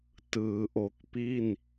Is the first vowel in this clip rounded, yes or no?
no